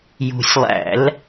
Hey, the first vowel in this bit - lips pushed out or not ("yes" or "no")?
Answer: yes